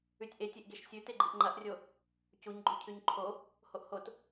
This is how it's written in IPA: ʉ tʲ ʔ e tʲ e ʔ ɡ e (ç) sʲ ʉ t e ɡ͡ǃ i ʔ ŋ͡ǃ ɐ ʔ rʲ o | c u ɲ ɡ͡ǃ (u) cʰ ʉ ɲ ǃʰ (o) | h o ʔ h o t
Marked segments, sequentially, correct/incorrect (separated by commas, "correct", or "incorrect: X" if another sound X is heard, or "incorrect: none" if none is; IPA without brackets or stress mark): incorrect: ʃ, incorrect: ʉ, correct